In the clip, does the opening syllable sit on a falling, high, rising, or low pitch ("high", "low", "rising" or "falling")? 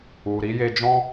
low